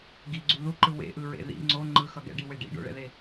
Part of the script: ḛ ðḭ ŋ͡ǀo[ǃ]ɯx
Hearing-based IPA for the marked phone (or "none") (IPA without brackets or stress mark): ŋ͡ǃ